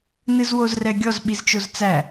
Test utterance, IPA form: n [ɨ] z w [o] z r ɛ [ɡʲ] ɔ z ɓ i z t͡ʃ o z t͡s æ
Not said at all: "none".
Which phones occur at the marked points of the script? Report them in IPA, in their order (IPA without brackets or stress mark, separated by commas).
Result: ɨ, o, ɡʲ